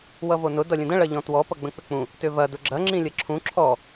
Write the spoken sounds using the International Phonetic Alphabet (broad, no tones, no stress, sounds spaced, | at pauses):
w ʌ v o n ʊ d ʌ lʲ ə̃ d ə̃ ɭ ɐ ʎ ɔ̃ t w ɔ p ʌ ɡ͡b ə̃ k͡p ʏ k͡p ũ | t ʏ v ɐ d ʊ ɡ͡ǁ ɐ ŋ͡ǁ ĩ lʲ ɐ ǁʰ ũ ǁʰ ɔ